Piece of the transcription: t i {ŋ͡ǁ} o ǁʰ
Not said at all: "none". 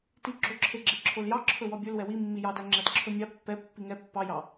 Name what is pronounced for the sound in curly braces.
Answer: ɡ͡ǁ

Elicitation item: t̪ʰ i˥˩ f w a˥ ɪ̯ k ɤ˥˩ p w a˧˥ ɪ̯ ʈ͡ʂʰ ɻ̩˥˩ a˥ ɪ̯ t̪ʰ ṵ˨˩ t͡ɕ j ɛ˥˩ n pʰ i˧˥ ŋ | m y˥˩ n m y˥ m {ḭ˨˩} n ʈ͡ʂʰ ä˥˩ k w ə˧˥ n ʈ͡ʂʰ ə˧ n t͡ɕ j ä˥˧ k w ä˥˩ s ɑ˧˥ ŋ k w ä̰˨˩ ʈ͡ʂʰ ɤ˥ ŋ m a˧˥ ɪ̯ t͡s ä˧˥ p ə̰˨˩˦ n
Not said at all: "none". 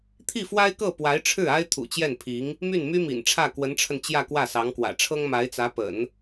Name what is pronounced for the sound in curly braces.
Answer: ḭ˨˩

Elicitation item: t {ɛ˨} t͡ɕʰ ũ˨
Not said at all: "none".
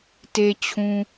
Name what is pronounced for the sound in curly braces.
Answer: e˨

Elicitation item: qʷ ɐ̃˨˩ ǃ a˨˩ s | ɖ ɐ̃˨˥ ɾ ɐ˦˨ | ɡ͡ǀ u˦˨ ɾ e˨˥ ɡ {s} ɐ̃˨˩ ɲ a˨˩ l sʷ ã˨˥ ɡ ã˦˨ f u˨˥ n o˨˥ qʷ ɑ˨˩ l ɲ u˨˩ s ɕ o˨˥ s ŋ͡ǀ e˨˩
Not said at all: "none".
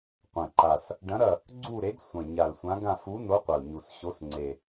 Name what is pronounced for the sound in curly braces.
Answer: sʷ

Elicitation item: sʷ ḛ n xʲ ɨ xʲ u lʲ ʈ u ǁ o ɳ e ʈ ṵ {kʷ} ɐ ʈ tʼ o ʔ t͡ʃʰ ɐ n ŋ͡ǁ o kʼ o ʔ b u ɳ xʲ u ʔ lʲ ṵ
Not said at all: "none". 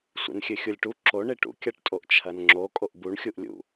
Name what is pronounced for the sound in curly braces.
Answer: kʲ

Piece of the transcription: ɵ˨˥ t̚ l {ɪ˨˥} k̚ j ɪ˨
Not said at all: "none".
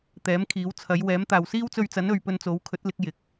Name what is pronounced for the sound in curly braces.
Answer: ɪ˨˥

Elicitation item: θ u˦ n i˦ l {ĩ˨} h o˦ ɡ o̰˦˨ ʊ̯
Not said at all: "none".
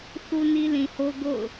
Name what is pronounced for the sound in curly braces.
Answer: ĩ˨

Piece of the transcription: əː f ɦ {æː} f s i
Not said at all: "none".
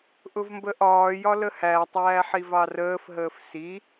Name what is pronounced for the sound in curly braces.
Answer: əː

